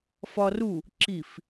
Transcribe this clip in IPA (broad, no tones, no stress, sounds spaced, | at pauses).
f ɒ r u | ǁ i f